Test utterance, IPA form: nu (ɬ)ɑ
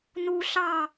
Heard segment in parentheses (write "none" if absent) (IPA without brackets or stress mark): ɬ